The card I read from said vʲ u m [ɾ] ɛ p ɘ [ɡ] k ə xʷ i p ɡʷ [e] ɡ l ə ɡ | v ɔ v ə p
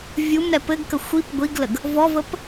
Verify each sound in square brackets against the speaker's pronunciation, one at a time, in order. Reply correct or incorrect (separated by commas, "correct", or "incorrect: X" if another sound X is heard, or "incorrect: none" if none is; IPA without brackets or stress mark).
correct, correct, incorrect: i